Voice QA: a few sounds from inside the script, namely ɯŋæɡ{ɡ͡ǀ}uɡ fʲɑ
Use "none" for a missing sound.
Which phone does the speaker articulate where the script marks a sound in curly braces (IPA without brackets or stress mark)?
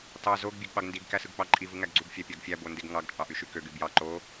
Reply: ɡ͡ǀ